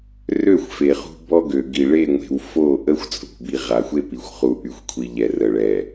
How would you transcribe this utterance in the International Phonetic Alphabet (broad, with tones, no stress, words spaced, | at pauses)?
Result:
rø˦˨xʷ fe˨χṳ˦ bɔ˦ɡø˨ɡi˨ ɭe˦˨ŋʷe̤˨w fo˦˨ʔə˦xʷ t͡sʼṳ˨bi˨ ʁa˨xʷe˦pi˨xʷ χu˨ʔy˨xʷkʷʰi˨ ʎɛ˨rə˨ɭɛ˨